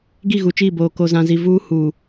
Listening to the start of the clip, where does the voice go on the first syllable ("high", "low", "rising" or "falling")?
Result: falling